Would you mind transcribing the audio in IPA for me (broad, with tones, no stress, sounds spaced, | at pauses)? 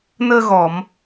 n əː˧ ɣ ɔ˨˩˨ m